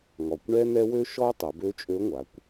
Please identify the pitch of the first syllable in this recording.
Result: low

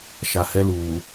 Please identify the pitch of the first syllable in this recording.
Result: low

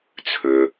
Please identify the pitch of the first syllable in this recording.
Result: low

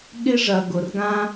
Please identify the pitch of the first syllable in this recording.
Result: high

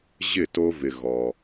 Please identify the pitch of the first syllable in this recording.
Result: falling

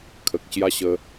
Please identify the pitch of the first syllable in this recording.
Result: low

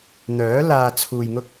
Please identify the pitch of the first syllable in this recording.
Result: rising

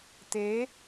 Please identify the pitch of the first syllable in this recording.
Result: rising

